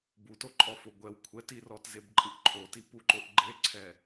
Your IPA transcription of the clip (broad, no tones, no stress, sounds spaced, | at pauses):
b u t o ǃʼ ɔ f o ɡʷ ɛ w kʷʰ ɛ t i r ɔ t z e b ǃʼ ɯ ʔ ǃʰ o t i p u ǃ o ʔ ɡ͡ǃ e ǀʰ ɛ